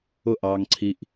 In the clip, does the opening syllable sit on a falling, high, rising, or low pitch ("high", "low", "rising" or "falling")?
falling